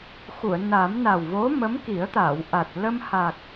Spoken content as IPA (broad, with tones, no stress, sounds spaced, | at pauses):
x u˨˩˨ ə̯ n a˨˩˦ m n a˨˩ w v o˧˥ m ə˧˥ m k i˨˩˦ ə̯ t̪ a˨˩˨ w ʔ a˨˩ t̚ l ə˧ m h a˨˩ k̚